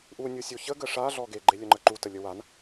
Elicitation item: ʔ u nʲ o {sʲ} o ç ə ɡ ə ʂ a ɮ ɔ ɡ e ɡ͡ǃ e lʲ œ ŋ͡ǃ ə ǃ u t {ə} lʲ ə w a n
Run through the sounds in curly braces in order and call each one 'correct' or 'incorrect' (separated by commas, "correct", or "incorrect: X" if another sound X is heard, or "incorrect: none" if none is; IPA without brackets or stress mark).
correct, correct